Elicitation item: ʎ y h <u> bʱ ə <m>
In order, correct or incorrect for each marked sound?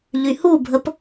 correct, incorrect: p

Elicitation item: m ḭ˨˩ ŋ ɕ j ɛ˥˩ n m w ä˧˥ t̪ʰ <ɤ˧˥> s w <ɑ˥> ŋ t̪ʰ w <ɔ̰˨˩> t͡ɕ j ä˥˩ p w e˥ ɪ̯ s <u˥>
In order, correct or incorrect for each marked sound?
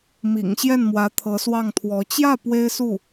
correct, incorrect: ɑ˥˩, incorrect: ɔ˧˥, incorrect: u˥˩

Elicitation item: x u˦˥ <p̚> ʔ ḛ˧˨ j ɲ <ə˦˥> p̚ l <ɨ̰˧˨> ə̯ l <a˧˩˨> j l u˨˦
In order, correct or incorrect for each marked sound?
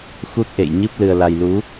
incorrect: t̚, incorrect: ɨ˦˥, incorrect: ɨ˧, incorrect: a˧

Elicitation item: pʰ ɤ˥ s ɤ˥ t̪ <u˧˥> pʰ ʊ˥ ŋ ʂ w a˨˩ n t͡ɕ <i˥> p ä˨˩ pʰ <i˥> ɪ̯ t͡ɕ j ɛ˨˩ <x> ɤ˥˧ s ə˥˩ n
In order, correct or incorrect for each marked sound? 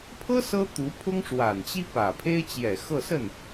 correct, correct, incorrect: e˥, correct

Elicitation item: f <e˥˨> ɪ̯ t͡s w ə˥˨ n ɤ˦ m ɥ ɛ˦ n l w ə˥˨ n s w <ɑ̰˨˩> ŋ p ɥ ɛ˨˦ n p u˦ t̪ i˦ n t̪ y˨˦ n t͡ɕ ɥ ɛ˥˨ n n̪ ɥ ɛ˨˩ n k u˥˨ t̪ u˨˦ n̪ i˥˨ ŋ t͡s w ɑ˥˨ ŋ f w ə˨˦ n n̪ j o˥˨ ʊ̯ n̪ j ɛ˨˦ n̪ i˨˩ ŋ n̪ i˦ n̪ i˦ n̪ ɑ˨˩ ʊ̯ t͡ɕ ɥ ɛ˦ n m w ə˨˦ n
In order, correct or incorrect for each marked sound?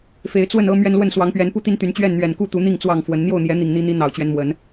incorrect: e˨˦, incorrect: ɑ˨˦

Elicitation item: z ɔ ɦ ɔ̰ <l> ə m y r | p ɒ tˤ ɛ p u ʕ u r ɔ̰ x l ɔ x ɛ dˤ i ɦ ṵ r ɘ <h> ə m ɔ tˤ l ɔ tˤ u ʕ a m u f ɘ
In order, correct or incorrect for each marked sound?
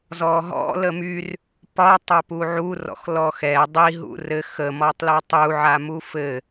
correct, incorrect: x

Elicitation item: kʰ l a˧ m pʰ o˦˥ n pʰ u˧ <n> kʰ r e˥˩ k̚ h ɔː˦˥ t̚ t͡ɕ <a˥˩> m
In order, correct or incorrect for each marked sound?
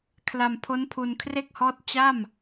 correct, correct

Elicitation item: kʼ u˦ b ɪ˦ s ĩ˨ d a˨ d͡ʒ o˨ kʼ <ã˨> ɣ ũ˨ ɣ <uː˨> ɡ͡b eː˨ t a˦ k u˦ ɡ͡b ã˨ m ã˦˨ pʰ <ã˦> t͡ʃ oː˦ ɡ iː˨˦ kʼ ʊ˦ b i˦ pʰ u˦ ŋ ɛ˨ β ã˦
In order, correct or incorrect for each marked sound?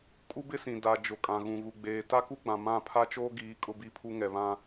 correct, incorrect: u˨, incorrect: a˦

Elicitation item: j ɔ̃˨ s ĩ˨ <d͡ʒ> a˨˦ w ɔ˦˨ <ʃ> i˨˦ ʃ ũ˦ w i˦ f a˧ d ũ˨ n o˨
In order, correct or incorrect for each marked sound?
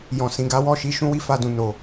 incorrect: ɡ, correct

